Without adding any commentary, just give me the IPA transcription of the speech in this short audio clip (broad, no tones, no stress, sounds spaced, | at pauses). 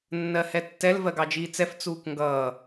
nː ɜ h ɛ tː ɛ l v ɜ ɡ ɑ d͡ʒ iː t͡s ɛ f t͡s uː k ŋ ɡ ʌː